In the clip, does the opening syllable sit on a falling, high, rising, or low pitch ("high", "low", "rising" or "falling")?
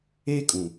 high